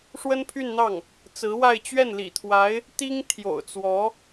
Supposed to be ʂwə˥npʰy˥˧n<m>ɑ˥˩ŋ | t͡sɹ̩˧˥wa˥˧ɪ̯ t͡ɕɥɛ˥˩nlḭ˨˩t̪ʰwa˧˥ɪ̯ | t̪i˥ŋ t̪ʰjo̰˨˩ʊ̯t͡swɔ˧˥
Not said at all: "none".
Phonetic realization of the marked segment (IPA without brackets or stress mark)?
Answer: n̪